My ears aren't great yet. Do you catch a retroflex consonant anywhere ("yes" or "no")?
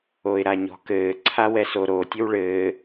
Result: yes